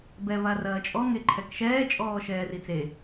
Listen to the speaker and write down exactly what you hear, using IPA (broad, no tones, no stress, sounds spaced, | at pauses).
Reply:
b ɛ v a r ɐː t͡ʃʼ ɔ ŋ e ǃʰ ɛ k ʃ ɛː t͡ʃʼ ɔː ʃ ɛː r i t͡s e